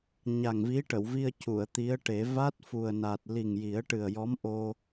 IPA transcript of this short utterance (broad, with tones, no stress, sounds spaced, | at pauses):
ɲ a˨˩ ŋ v i˧˥ ʈ ə˨˩˨ w v i˧ ə̯ c u˨˩˨ ə̯ t̪ i˧˥ ə̯ ʈ e˨˩˦ v a˦˥ t̚ f u˨˩ ə̯ n a˨˩ t̚ l i˨˩ ŋ j i˨˩˦ ə̯ ʈ ɨ˨˩ ə̯ j ɔ˧˥ m ʔ o˧